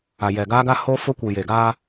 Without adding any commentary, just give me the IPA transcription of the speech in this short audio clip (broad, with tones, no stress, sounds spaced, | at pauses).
a˨ j ɛ˨ ɡ aː˦ ɡ a˦ h o˦ f ʊ˦ kʷ i˨ j e˨ ɡ aː˦